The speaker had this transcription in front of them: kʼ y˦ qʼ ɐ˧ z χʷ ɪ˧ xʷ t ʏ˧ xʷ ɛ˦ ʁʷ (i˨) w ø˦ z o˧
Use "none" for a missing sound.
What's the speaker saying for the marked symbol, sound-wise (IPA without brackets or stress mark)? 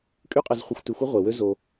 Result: e˨